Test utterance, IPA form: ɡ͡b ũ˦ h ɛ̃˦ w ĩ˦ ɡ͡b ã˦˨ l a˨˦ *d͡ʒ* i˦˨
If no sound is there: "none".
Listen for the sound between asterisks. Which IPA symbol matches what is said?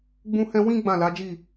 d͡ʒ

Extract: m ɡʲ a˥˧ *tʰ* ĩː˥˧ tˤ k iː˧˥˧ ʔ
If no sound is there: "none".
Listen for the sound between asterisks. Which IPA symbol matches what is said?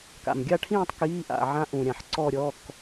ʈʰ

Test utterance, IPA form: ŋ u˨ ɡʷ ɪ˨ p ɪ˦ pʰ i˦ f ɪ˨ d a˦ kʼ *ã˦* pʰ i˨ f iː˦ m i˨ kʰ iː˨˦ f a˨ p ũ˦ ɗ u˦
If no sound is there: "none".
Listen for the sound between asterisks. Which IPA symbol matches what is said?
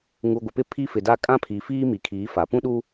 ã˦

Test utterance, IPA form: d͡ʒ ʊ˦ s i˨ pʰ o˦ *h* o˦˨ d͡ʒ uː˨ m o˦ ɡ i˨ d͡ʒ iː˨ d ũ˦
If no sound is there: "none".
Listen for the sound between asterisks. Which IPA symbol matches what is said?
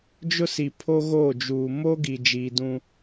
ɣ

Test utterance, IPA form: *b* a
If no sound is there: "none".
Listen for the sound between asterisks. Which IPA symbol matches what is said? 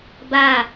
b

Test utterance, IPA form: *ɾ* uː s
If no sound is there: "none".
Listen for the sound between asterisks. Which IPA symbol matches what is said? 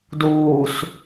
d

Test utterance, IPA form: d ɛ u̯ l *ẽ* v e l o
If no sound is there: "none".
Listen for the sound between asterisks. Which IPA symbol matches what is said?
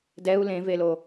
ẽ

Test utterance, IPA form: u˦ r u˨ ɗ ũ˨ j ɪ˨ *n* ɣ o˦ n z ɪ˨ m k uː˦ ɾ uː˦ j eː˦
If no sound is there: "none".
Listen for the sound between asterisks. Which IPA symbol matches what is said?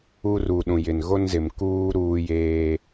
n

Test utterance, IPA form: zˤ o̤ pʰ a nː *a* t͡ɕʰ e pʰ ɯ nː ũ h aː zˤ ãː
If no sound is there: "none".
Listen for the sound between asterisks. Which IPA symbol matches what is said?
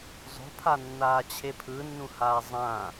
aː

